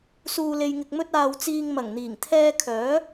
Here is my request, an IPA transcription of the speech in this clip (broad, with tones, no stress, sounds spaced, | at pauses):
s uː˨ l e˨ j ŋ ɪ˨ k̚ m ɵ˥ t̚ aː˧ w t͡s iː˧ ŋ m ɐ˨˩ ŋ n̪ iː˨˩ ŋ t̪ʰ ɛː˥ kʰ œː˨˥